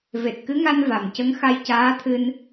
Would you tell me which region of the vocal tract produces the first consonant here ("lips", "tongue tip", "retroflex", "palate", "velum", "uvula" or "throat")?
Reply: lips